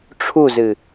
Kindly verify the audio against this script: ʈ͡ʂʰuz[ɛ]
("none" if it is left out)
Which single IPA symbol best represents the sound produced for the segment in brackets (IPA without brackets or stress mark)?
ɨ